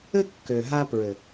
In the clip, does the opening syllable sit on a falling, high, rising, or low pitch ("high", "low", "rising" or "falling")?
high